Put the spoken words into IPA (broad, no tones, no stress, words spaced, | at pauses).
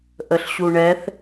ʔəɬɕuɳɛθ